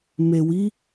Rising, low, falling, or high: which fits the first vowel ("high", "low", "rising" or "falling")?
low